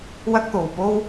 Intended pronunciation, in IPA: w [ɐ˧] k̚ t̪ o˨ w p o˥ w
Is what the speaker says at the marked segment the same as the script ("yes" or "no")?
no